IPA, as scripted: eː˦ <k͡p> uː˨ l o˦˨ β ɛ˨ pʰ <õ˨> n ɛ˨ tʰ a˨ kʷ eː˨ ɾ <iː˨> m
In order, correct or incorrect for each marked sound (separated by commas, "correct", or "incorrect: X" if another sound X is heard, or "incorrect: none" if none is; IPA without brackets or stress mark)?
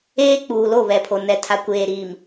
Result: correct, incorrect: o˨, correct